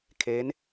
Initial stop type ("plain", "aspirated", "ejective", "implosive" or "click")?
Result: aspirated